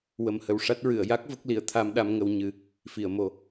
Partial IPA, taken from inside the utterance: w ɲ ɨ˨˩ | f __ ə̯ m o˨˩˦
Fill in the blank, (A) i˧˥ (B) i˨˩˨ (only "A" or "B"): B